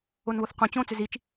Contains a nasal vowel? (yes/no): yes